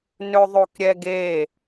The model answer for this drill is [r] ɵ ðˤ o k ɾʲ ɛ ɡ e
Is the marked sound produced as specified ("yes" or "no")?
no